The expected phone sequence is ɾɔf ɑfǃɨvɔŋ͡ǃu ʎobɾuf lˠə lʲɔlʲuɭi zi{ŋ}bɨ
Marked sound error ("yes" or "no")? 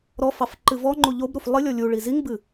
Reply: no